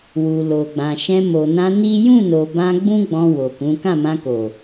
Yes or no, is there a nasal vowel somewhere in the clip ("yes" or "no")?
yes